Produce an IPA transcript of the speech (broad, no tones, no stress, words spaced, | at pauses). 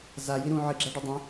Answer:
zaji ɾũ ʕɨɡ͡ǁaɖɐ dˤɐ̃